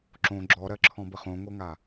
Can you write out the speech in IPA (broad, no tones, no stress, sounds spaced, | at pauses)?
ǁ õ ɡ͡ǁ ɔ ɾ ɜ ǁʰ ɔ̃ b ə χ õ ŋʷ ɤ ŋ a